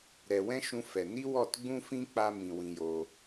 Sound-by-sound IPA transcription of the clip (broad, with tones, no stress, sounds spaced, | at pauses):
ɾ ɛ˨ w ɛ̃˦ ʃ ũ˧ f ɛ˨ n i˦ w ɔ˦˨ t ɡ͡b ũ˦ f ĩ˦ k͡p a˦ m ĩ˧ w ĩ˧ j o˧